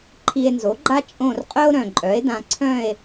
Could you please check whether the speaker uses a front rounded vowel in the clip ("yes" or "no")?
yes